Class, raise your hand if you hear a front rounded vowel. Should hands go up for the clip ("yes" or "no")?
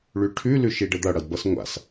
yes